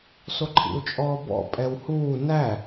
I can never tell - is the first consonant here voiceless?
yes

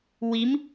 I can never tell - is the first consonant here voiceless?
no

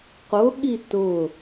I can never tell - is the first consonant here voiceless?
yes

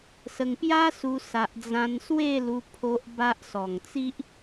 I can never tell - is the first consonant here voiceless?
yes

